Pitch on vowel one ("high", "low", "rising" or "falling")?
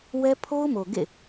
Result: high